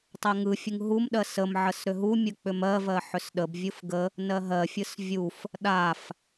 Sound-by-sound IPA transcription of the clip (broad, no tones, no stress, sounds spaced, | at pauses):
tˤ ɜ ŋ ɯ fʲ ɯ ŋ ɦ u m ɗ ɜ s ə m ʕ ə s ɾ ʏ ɦ u mʲ ə k͡p ʏ m ɜ v ɜ ħ ʏ s ɗ ə b vʲ ɯ f ɡ ə | n ɜ ɦ ɜ fʲ ɯ s vʲ u f | ɗ a f